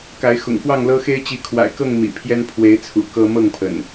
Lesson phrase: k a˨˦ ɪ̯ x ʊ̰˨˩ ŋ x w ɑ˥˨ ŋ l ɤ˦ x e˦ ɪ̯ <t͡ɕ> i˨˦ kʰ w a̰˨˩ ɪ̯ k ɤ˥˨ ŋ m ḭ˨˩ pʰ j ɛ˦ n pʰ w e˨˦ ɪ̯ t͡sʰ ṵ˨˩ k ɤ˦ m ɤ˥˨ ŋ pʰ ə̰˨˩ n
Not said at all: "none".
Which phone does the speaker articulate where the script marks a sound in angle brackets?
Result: t͡ɕ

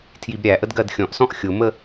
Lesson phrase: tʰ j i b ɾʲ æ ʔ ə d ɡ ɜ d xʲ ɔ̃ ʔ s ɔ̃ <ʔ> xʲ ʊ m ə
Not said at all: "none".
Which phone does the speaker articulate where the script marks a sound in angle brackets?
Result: ʔ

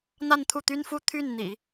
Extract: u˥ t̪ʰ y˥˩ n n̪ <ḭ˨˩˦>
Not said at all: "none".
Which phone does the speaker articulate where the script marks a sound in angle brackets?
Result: ḭ˨˩˦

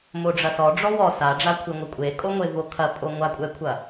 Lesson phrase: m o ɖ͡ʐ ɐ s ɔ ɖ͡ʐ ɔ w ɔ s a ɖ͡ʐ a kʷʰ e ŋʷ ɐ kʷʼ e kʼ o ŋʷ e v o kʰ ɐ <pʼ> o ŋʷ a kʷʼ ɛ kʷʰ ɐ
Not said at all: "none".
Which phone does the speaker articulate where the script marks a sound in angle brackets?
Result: pʼ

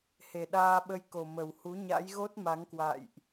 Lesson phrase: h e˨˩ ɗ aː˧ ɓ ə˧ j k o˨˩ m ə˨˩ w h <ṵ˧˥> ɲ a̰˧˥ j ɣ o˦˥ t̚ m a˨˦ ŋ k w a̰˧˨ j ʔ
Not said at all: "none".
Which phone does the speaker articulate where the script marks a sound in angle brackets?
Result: u˨˦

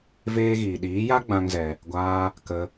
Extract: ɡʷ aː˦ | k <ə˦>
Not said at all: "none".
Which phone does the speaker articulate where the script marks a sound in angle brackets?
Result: ə˦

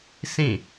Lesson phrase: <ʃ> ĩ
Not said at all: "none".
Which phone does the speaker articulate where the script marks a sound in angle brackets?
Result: s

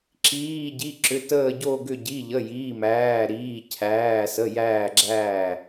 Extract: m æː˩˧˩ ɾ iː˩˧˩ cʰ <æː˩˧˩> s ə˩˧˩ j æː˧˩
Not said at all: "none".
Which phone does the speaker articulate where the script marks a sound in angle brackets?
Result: æː˩˧˩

